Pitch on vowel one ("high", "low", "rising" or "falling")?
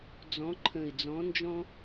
rising